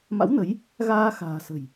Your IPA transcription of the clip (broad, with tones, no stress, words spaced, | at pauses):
ma̰˧˥wnə˨˦j | ɣaː˧xa̤ː˨˩sə̤˨˩j